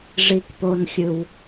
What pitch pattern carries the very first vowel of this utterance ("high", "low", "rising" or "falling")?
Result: high